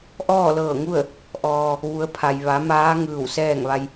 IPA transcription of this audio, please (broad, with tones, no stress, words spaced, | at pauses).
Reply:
ʔɔː˥˨lɤː˧˩ŋu˥˨ə̯ | ʔɔː˩ | ʋu˩˧ə̯ pʰa˩jʋa˩˧ maː˧˥ŋɯː˧˩w sɛː˥˨ŋʋa˧j